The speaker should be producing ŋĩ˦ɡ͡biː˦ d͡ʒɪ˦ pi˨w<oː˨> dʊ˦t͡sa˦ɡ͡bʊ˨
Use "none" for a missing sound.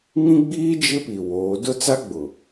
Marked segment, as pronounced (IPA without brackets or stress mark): oː˨˦